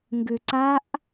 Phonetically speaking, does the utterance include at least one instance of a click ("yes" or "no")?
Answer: yes